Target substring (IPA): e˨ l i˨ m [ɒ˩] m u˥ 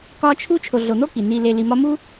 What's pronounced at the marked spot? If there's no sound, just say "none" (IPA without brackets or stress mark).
ɒ˦